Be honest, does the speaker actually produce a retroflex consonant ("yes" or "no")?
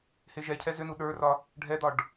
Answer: yes